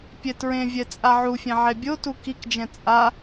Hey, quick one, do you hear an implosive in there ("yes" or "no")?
no